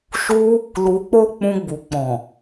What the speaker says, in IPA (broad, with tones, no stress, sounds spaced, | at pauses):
ʃ u˦ | l u˧ k͡p o˦ k͡p ũ˧ ɡ͡b u˨ k͡p ɔ̃˨